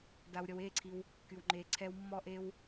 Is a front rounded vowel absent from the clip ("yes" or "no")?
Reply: no